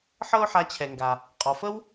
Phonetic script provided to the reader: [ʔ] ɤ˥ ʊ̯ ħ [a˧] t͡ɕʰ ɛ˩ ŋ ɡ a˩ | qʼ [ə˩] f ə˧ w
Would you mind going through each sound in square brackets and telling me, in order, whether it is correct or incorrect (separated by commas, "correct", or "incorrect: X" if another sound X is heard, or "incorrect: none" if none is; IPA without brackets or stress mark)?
incorrect: ħ, correct, incorrect: ɔ˩